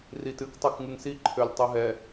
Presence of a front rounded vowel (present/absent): present